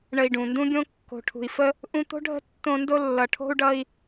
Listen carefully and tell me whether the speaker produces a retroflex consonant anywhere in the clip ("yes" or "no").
yes